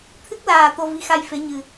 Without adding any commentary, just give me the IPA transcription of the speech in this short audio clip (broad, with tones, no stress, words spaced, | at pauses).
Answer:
t̪ʰɨ˦˥k̚laː˨˩ t̪o˧vi˨˦xa˧jfe˨˦ ɲɨ˨˩